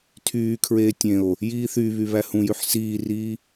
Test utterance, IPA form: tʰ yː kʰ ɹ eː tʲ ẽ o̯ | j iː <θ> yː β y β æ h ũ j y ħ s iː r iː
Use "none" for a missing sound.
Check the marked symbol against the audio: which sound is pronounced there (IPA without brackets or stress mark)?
θ